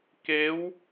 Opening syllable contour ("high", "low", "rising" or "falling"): rising